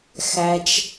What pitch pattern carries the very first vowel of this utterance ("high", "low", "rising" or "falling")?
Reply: low